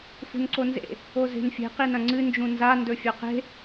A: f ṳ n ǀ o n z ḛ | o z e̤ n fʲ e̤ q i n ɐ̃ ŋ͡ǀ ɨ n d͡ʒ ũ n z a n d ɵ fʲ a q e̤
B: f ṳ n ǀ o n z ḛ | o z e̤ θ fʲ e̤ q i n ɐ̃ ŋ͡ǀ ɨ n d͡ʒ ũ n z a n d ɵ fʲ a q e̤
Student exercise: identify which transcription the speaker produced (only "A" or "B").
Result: A